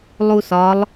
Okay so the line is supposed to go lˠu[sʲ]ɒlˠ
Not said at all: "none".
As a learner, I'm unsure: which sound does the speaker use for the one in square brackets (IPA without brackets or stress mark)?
s